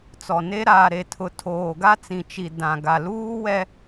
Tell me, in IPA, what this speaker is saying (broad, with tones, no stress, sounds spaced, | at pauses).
t͡s ɔ˨ n e˦ ɾ aː˨ ɾ e˨ tʰ ʊ˨ tʰ oː˨ ɡ a˦ t͡s ĩ˨ t͡ʃ i˨ d ã˨ ɡ a˨ l uː˦ w ɛ˦